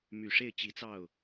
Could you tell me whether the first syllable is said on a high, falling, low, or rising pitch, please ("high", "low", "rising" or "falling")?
low